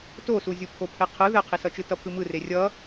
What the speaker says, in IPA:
t o s u zʲ u pʰ o pʰ ɛ qʰ ɯ ð ɛ qʰ i s ʌ t͡ʃ ɯ t ʌ pʰ ɯ m ɯ r e rʲ ʌ

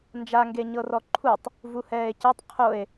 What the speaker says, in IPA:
n d͡ʒ a ŋ ɡ e ɲ ɤ r ɔ ǃʰ u tˤ | v u h ɛː e̯ c e tˤ qʰ o e̯

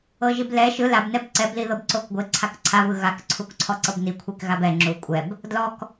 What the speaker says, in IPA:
ɤ ʒ i b l ɛ ʃ ɯ l a b n ɛ b ǀ ɛ b l i ð ɤ b ǀ o k ɡʷ e ǀʰ a k ǀʰ a β ɯ ɣ a k ǀʰ u k ǀʰ ɔ ǀ ɤ b n i kʷʰ i k ɣ a b ɛ ŋ͡ǁ u kʷʼ ɛ b | d l ɔ k

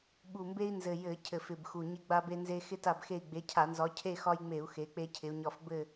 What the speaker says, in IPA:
ɓ u˨˩ m b e˦ i̯ n z ɘ˨˩ j ɘ˧˩˧ cʰ ɘ˨˩ f ɪ˨˩ b x u˨˩ ɲ ɪ˦ ɡ͡b a˦ b e˦ n z e˦ x ɪ˦ t a˦˨ b x e˦˨ i̯ ɡ͡b e˨˦ cʰ a˧˩˧ n z ɒ˨˦ cʰ e˦˨ x ɒ˦ j ŋ͡m e˧˩˧ u̯ x e˨˦ k͡p e˦ cʰ ɪ˨˦ u̯ ɲ ɒ˦˨ f b ɘ˦˨

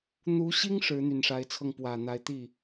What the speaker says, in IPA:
n̪ u˧˥ ɕ i˥ ŋ ʂ ɻ̩˧˥ n̪ y˨˩ n ʂ a˧˥ ɪ̯ t͡sʰ ɤ˥˩ ŋ p w ä˨˩ n̪ a˧˥ ɪ̯ t̪ i˥˩

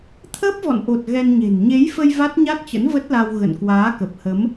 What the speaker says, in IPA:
t̪ʰ əː˦˥ p̚ v ɔ̰˧˨ n ʔ o˨˩ t̚ ɣ ɛ˧ n ɲ e̤˨˩ n ɲ e˨˦ j f ə˧ j v a˦˥ t̚ ɲ a˦˥ t̚ t͡ɕ ə̰˧˥ n v ə˦˥ t̚ l a˧ w ɣ ə̰˧˨ n k w aː˨˦ k ə˨˩ p̚ h ə˨˦ m

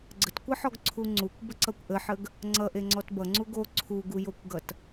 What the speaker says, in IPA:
ɡ͡ǀ ə t kʷ ʌ ħ ɔ ɡ ǀʰ u ŋ͡ǀ u kʷ b ə ǀ ʌ kʷ ʔ ə ħ ə ɡ | ŋ͡ǀ ʌ ʔ e ŋ͡ǀ ɔ t b ʌ ŋ͡ǀ u ɡ o ǀʰ u ɡ u j o kʷ ɡ ʌ t

